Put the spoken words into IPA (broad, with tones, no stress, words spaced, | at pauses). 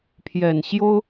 pʰjɛ˨˩nɕjo˦ʊ̯